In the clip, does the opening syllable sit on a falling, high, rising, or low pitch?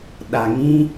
low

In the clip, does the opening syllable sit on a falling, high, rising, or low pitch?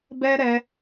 high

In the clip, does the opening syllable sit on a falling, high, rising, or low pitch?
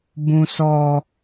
low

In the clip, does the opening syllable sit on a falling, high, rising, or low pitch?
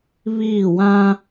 falling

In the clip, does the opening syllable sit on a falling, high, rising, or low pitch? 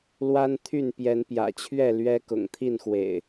high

